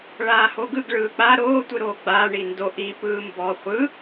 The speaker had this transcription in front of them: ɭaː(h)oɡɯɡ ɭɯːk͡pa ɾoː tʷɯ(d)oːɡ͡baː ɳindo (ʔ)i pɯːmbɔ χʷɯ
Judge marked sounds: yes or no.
yes, no, yes

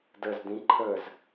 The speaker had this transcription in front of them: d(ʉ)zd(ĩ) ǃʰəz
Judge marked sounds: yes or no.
no, yes

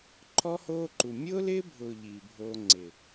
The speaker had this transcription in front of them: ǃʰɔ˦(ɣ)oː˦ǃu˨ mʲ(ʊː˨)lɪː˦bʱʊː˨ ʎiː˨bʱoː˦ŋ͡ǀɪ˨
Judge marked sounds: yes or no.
no, no

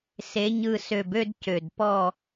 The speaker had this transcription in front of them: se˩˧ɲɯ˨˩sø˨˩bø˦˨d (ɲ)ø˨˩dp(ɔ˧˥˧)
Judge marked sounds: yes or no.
no, no

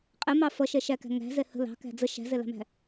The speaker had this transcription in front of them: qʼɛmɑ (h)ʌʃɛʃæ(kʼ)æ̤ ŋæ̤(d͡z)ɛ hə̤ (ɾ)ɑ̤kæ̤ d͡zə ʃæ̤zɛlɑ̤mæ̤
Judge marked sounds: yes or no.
no, no, no, no

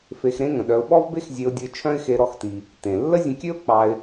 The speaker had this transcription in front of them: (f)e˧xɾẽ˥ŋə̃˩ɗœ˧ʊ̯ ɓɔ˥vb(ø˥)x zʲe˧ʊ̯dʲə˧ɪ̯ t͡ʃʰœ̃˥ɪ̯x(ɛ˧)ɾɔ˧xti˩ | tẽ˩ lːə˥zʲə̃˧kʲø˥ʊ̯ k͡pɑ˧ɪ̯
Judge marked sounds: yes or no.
yes, no, no

